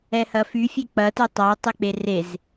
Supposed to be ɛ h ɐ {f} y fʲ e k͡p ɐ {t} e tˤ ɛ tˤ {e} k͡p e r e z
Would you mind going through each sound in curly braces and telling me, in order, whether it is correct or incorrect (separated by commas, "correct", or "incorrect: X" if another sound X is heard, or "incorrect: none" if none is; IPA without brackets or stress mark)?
correct, correct, incorrect: i